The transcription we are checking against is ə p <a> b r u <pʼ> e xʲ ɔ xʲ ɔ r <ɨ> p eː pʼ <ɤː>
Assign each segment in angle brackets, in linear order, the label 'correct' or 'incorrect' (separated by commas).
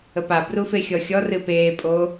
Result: correct, incorrect, correct, incorrect